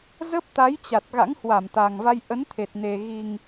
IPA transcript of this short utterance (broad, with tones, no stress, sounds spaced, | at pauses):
z ə˦˥ p̚ t̪ a˨˦ j t͡ɕ a˨˩ t̚ ɣ a̰˧˥ ŋ h w a˧˩ m t̪ a˨˩ ŋ v a˧ j ʔ ə˨˦ n t̪ʰ e˨˩ t̚ n e˨˩ ɣ i˨˩ ŋ